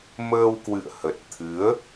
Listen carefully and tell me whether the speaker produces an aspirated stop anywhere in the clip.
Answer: yes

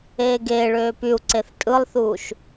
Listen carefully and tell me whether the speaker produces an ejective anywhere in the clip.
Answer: yes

